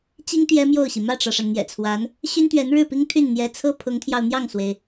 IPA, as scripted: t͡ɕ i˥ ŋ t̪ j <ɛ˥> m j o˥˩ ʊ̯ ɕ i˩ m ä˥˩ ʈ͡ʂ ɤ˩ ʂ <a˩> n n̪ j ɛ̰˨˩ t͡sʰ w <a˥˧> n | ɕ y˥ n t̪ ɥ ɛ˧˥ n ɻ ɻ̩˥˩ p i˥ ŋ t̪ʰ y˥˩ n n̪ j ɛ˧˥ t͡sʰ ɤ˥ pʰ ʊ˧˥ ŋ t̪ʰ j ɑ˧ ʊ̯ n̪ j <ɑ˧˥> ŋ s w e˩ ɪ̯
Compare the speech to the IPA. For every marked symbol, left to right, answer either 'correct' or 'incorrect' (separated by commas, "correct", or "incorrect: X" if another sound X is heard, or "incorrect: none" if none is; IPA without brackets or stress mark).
correct, correct, incorrect: a˧˥, incorrect: ɑ˥˩